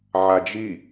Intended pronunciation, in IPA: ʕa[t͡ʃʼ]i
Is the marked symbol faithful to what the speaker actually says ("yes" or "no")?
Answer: no